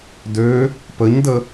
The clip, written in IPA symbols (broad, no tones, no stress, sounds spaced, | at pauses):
d ø | p ə ɲ d ə